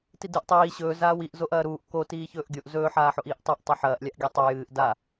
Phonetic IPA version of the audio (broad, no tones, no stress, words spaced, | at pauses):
tidɨʔ tˤiː ɕɵː zaːwiʔzoʔ ɐːɾuːʔ ko tiːçɵːʔɡʲoʔ zɵːħaːħoʔ iːʔtˤʉʔtˤo ħɐːʔlʲaʔɡʲɵ tˤɨ jɨːʔ da